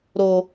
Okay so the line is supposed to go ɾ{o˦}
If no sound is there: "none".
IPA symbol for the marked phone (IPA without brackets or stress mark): o˦